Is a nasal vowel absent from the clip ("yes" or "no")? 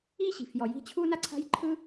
yes